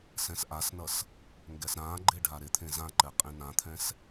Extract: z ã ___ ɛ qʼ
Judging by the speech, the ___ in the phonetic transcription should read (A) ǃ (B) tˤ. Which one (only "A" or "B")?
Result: A